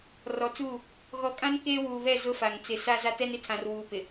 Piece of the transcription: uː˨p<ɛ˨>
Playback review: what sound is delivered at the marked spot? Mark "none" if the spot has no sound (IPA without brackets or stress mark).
ɪ˨